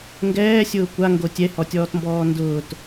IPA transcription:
ŋ ɡ ɛː sʲ ʊː kʷ a ŋ ɡ o tʲ ɛ h ɔ tʲ ɔː t m b ɔː n d ʊː t

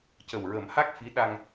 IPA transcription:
c ə˨˩ w ɹ ə˨˩˦ m h a˦˥ k̚ f i˧˥ ɗ a˧ ŋ

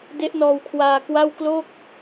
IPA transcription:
d e˦˥ ʔ n ɔː˧ w kʰ w aː˧ k w a˥˩ w k l o˥˩ k̚

